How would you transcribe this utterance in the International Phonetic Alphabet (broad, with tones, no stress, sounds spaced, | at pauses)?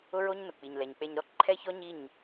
ʊ˦ ɹ o˦ ɲ n ʊ˨ k͡p i˨ ɲ l ɛ˨ ɲ k͡p e˧ ɲ ɾ ɔ˦ ǃʰ ɛ˦ ç ɔ˦ ɲ i˦˨ ɲ